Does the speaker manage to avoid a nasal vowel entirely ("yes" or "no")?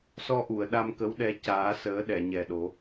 yes